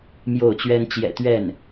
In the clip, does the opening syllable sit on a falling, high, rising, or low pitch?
falling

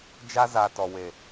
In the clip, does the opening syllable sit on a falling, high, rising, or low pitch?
high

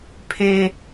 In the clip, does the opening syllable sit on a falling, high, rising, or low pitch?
high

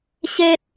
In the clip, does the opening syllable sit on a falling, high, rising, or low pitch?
high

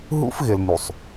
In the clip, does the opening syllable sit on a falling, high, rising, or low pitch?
high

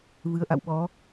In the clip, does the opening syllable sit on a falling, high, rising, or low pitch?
rising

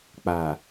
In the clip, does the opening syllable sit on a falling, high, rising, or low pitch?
low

